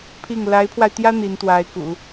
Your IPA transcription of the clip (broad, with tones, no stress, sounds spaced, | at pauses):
pʰ i˥˩ ŋ l a˧˥ ɪ̯ pʰ w a˧ ɪ̯ t̪ j ä˥ n̪ i˧˥ n t̪ w a˧˥ ɪ̯ k ṵ˨˩˦